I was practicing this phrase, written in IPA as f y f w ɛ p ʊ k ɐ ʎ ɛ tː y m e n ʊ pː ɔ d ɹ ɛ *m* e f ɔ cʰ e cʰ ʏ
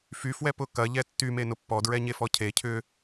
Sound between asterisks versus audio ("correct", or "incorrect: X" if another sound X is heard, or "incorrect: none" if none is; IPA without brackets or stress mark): incorrect: ɲ